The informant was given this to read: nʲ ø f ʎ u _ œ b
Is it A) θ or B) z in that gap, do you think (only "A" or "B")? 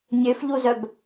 B